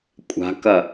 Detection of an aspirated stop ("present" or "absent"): absent